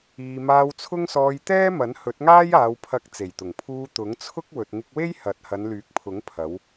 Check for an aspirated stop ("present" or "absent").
present